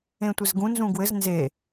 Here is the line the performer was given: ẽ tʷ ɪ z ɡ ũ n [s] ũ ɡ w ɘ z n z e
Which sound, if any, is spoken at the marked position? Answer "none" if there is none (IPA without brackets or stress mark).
z